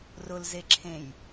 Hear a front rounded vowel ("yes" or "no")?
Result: no